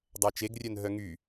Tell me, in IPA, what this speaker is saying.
dˤæt͡ʃeɡrʲœnɦœ ŋy

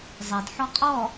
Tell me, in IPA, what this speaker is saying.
zˤedħɔ qʼɔ

